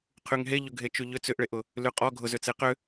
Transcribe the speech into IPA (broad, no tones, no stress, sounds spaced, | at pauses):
qʰ y ŋ ɦ e ʎ ʊ ɡʱ e t͡ʃ y ʎ ʏ t͡s ʏ ʔ ɭ e ʔ ʊ | l y qʼ ɔ ɡʱ ʊ z ʏ t͡s e q ʏ